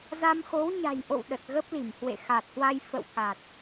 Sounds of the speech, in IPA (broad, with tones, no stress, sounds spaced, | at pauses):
z a˧ m x o˨˦ w ɲ a̤˨˩ j ʔ o̰˧˨ w ɗ ə˨˩ t̚ ɣ ə˦˥ p̚ l i˧˩ m h w ḛ˧˨ x a˨˩ t̚ h w a˧ j f ə̰˧˨ w k a˨˩ t̚